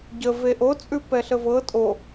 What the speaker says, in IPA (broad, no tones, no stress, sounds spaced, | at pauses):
ɟ ə v e ʔ o t͡sʼ ʉ p ɛ ɬ ə v ɤ tʼ o